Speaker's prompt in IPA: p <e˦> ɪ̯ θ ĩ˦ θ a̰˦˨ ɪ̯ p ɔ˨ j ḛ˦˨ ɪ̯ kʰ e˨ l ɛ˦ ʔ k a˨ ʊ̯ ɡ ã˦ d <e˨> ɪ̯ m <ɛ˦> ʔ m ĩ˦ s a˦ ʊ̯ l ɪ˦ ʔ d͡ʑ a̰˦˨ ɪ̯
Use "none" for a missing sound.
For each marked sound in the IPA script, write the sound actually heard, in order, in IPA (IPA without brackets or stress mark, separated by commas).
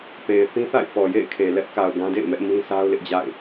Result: e˨, ḛ˦˨, ɛ˦